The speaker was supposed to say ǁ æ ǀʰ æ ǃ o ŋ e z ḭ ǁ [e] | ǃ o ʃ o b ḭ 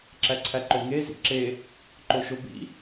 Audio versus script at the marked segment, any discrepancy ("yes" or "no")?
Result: no